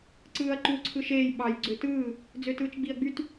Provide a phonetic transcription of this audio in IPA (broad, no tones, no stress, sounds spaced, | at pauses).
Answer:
ǀ ɯː ɐ̯ ǃ u ǀʰ ɯ ʃ eː j ɓ ɑ j ɡ͡ǀ ø t ɯː | d͡z ø t ɯː t͡ʃ ɡ͡b i ɐ̯ ɡ͡b y t